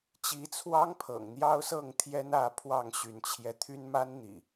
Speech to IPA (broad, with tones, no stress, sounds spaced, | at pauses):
t͡ɕ i˨˦ t͡sʰ w ɑ˦ ŋ pʰ ɤ̰˨˩ ŋ n̪ j ɑ˦ ʊ̯ s ɤ˥˨ ŋ t̪ʰ j ɛ˦ n ä˥˨ pʰ w ɑ˥˨ ŋ ɕ y˨˦ n t͡ɕʰ j ɛ˧ t̪ʰ y˦ n m a˦ n n̪ ḭ˨˩